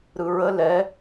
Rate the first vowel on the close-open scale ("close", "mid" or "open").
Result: close